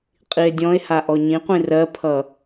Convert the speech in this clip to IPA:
qʼ i e̯ dʲ ɔ̃ e̯ h a ʔ ɔ ɲ ĩ qʷ ĩ r ɜ pʰ ʌ

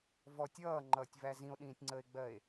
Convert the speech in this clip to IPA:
v ɔ tʲ ʌː ŋ͡ǃ ʌː tʲ v æ z ĩ o̯ ɗ ĩː tʲ ŋ͡ǀ əː e̯ ɡ͡b ɜ e̯

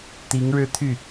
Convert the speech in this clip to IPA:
t̪ i˧˥ ŋ ɻ ɻ̩˥˧ t̪ʰ y˥˩

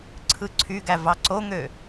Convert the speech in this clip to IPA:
ǀʰ ɯ ǀʰ y ɡ æ v ɑ ǀ o ŋ ø

